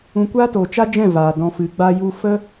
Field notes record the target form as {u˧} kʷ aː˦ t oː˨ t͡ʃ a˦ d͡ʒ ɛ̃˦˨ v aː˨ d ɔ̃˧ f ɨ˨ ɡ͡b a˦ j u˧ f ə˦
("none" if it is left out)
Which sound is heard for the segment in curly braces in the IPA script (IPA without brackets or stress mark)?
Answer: ũ˧